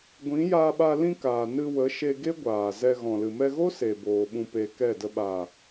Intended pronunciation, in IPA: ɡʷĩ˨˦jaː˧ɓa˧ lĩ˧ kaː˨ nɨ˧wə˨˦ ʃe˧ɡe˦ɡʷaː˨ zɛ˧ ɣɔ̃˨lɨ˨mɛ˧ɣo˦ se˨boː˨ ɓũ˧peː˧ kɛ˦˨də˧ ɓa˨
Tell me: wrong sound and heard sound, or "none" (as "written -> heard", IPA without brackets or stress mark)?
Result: none